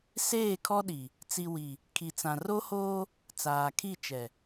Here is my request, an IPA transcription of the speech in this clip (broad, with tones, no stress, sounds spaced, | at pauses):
s eː˦˨ kʰ ɔ˦ ɗ i˨ | t͡s i˨ w i˨ | kʰ i˨ t͡s ã˨ r o˦ h oː˦ | t͡s aː˨ kʰ i˦˨ t͡ʃ ɛ˨